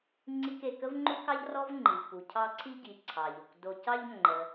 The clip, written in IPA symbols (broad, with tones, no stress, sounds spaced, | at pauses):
ŋ͡ǀ i˦ k e˨ k ə˥ v ŋ͡ǃ u˥ k ɑ˥ ʎ r ɔ˥ v ŋ͡ǃ i˩ v p u˩ cʰ ɑ˦ ǀʰ i˥ ɟ i˨ ǀʰ ɑ˩ ʎ o˩ k d o˨ c ɑ˦ ʎ ŋ͡ǃ ə˨